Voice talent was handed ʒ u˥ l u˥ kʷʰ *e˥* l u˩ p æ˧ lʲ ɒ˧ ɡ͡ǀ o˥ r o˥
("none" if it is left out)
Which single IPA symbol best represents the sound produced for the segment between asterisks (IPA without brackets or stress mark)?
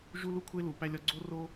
e˥